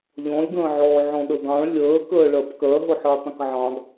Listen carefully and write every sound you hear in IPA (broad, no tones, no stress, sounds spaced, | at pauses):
ʎ ɔ̃ lʲ ɡ ə̃ː ʕ ɔː ʕ ɔ̃ ɗ ə ɡ ɑ̃ ɭ lʲ əː k əː ɭ ɜ p k ɜ ɦ ʊ ħ əː tˤ ə̃ k ʕ ɑ̃ ɡ